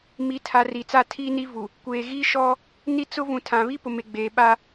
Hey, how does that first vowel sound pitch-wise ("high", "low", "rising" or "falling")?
low